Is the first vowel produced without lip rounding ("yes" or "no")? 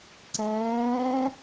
yes